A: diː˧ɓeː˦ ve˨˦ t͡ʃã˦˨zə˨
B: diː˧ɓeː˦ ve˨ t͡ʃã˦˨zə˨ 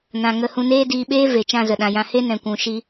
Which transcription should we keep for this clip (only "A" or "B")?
B